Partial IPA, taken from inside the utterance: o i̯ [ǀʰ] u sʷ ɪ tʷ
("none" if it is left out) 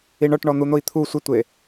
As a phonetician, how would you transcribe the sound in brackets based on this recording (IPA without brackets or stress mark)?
t̪ʰ